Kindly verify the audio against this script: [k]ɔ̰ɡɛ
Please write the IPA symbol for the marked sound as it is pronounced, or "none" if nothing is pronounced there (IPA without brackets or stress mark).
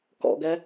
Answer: k